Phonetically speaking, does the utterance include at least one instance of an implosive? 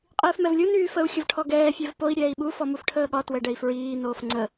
yes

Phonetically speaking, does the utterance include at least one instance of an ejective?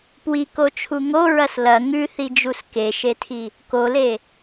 no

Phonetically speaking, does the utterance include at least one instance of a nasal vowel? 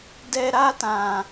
yes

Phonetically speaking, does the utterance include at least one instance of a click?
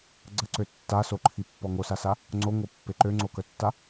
yes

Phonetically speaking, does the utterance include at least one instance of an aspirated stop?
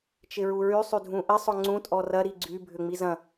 no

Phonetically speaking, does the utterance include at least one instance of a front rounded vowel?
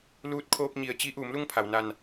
no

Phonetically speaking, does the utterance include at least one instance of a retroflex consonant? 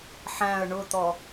yes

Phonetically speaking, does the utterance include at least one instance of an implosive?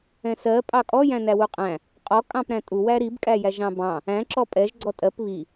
no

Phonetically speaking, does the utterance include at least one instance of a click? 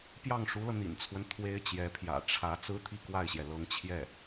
no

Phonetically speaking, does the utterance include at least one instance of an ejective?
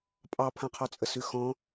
yes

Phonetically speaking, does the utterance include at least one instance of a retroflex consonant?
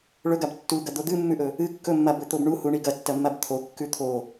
yes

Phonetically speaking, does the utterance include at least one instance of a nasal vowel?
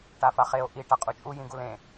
yes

